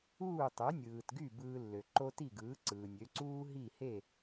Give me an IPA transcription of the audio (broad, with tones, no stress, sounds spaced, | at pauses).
uː˥˩ tˤ ø˩˥ nʲ ɯː˩ t ɡ y˥˩ b ɯː˧ lː ø˩ ǃ o˥ t i˥˩ ɡ ɯː˩˥ ǀ ɯː˩ nʲ ø˩˥ ǀ uː˥ ɦ i˥˩ h e˥˩